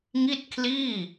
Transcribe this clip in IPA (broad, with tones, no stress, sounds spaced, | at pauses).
ŋ i˥˩ t̚ kʰ l iː˥˩